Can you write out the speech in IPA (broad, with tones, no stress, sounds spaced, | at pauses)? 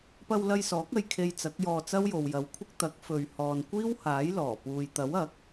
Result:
p ɐ˧ w l ɐ˧ j s ɔː˨˥ k̚ ɐ˧ j kʰ e˧ j t͡s ɐ˨˥ k̚ j ɔː˧ t͡s ɐ˥ w j o˨ w j ɐ˨˥ w kʷʰ ɪ˥ k̚ t̪ ɐ˨˥ k̚ f ɵ˨ ɥ h ɔː˨ n kʷ iː˥ w h aː˨˥ j l ɔː˨˩ p uː˨ j t̪ ɐ˨˥ w ɐ˨˥ k̚